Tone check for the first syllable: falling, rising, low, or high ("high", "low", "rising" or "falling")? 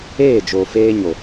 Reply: falling